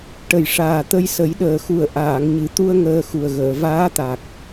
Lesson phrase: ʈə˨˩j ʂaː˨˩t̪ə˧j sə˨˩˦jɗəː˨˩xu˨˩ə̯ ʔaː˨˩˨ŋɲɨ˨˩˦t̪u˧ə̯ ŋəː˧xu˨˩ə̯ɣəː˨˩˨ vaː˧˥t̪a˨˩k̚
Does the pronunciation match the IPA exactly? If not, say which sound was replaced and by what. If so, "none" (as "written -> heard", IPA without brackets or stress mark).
none